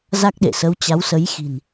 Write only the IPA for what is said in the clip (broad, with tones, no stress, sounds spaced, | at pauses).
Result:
z a˦˥ k̚ ɗ ḛ˧˨ s ə˨˦ w t͡ɕ a˨˦ w s ə˨˦ j x i̤˨˩ n